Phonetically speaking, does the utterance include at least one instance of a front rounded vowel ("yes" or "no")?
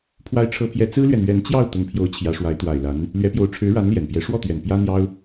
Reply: no